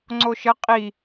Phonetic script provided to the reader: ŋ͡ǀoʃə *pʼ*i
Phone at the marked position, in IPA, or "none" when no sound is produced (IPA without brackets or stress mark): qʼ